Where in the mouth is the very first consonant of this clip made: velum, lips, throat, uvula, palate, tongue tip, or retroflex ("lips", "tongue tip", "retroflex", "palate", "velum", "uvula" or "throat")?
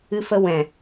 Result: lips